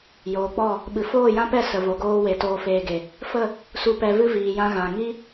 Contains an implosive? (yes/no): yes